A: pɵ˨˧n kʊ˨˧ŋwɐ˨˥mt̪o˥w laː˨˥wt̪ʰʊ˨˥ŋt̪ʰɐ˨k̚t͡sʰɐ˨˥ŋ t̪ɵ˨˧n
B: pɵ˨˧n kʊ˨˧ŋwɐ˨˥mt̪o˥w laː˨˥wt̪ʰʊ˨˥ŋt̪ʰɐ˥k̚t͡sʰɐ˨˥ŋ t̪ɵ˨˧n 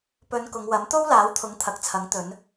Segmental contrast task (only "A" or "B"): A